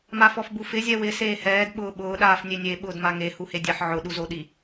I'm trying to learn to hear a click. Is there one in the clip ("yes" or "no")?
no